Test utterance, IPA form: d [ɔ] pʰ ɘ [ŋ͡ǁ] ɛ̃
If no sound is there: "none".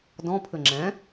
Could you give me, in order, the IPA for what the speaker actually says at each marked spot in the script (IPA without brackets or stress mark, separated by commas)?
ɔ̃, ŋ͡ǁ